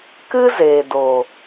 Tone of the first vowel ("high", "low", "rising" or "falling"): high